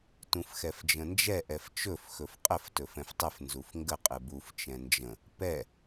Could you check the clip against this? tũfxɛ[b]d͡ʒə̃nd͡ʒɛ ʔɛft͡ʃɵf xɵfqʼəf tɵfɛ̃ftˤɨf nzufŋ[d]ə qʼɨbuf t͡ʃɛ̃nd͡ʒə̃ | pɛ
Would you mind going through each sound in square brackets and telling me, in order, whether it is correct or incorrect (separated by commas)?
incorrect, incorrect